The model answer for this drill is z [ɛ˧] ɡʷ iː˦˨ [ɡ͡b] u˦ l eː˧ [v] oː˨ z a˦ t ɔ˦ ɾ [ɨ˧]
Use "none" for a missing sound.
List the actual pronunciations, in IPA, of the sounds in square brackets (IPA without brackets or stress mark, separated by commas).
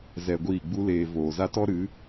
ɛ˧, ɡ͡b, v, ɨ˨˦